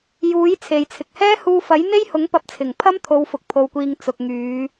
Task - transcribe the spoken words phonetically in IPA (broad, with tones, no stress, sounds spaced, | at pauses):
j uː˨˥ j t͡sʰ e˨ j t͡sʰ ɪ˨ k̚ h ɛː˥ h uː˧ f ɐ˨˥ j n̪ e˥ j h ʊ˨˥ ŋ p ɐ˧ p̚ t͡sʰ ɪ˨˩ ŋ pʰ ɐ˥ m t̪ʰ o˨˧ w f ʊ˨ k̚ pʰ o˧ w kʷ iː˧ ŋ t͡s ʊ˨ k̚ ŋ yː˨˧